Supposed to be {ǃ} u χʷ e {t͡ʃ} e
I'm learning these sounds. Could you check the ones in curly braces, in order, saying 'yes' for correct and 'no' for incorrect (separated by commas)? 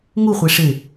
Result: no, no